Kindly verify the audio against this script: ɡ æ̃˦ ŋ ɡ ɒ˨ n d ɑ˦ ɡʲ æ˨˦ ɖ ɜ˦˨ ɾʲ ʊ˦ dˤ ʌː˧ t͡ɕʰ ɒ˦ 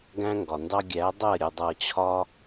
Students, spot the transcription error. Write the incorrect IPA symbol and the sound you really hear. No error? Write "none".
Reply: ɖ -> dˤ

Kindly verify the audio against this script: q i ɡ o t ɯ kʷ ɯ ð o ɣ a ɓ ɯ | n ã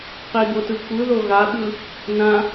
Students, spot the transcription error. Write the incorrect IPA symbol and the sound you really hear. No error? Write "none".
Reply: none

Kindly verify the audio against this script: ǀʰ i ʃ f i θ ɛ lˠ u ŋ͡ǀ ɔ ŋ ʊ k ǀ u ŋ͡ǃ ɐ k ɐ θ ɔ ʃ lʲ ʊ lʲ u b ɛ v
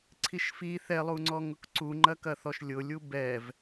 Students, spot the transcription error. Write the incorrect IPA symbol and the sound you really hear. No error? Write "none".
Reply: none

